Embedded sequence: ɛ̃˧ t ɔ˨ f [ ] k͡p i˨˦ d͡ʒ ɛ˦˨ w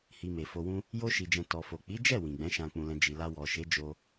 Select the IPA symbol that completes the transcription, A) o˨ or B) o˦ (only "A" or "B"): A